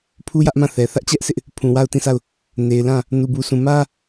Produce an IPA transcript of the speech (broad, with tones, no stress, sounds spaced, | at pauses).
pʰ u˦ j ä˦ ʔ m ã˦˨ θ ɛ˨ θ ä˦ ʔ t͡ɕ ɛ˦ ʔ s ɪ˦ ʔ | pʰ ũ˨ w a˦˨ ʊ̯ t ĩ˦˨ sʰ a˦˨ ʊ̯ | n e˨ ɪ̯ l ã˦˨ | n u˨ b u˨ sʰ ũ˨ m ä˦